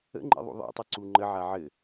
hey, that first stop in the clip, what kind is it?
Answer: click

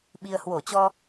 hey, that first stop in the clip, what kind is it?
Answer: implosive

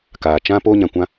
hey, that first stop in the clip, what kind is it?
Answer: plain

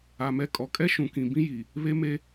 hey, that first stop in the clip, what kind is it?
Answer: ejective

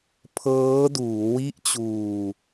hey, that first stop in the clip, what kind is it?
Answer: aspirated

